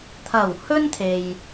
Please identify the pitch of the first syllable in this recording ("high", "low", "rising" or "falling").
low